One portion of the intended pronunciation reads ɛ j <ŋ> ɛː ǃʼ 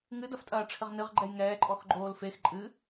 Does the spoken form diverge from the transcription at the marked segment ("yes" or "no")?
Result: no